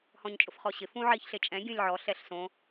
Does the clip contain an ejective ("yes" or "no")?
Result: yes